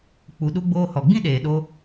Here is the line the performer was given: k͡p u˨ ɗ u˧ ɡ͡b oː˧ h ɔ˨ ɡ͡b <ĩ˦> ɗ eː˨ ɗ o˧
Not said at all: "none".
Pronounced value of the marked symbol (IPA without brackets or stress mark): ĩ˦